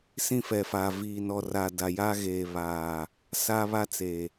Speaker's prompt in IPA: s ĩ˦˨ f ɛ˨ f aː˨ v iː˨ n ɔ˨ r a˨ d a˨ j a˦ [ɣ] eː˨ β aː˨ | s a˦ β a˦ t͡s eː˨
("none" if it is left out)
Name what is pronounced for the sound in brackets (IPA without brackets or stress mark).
ɣ